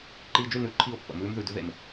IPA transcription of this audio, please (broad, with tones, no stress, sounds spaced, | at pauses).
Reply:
ǃ iː˧ d͡ʒ y˦˨ n ʉ˧ ǃʰ i˦˨ ʊ̯ pː ə̰˨ m ʉː˦ m ð ʉ˨ d ʉ˦ ð ḛ˨ m